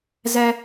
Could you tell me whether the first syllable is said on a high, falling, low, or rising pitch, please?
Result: high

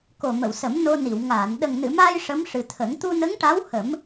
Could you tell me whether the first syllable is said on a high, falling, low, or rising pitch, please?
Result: low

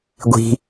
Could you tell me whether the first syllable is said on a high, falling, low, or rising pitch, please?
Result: high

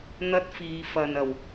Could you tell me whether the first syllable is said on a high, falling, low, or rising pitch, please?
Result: high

